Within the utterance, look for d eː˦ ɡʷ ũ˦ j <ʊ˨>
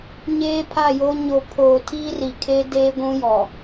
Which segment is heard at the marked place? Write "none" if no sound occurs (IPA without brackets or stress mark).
ɔ˨